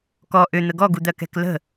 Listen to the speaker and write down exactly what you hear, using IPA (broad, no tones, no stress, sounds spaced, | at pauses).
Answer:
k ɔ ʔ ʏ n̪ ə ɡ ɔ ɡ u d̪ ɜ k ɛ̤ k l ə̤